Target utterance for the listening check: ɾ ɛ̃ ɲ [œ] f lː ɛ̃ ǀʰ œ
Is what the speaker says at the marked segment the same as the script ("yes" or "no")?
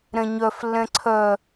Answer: yes